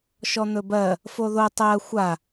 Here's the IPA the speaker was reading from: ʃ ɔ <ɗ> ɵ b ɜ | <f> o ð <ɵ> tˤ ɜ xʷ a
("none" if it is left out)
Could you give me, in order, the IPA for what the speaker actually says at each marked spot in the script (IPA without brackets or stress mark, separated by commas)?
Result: n̪, f, o